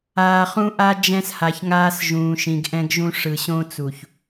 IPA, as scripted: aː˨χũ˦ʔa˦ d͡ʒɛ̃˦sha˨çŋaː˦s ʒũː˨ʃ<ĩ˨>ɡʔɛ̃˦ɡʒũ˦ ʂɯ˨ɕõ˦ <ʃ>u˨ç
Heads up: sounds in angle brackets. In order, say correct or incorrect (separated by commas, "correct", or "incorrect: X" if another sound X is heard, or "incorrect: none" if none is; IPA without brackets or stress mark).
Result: correct, incorrect: t͡s